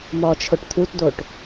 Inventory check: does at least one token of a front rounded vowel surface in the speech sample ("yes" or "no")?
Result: no